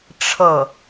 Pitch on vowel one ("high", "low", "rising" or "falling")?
falling